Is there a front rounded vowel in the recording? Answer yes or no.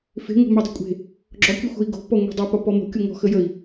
yes